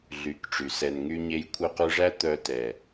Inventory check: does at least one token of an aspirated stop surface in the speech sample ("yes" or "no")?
yes